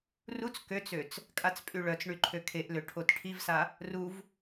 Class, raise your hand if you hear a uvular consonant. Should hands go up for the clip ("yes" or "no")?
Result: no